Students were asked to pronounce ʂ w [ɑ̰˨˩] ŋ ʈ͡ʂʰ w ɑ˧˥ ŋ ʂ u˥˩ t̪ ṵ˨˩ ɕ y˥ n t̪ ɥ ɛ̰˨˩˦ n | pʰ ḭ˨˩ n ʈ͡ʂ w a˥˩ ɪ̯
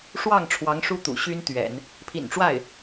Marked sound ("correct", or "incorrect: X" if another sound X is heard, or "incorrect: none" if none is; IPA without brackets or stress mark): incorrect: ɑ˥˩